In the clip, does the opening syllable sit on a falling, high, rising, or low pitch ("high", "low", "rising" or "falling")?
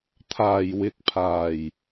low